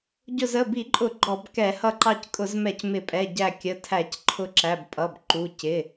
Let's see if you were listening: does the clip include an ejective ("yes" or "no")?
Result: yes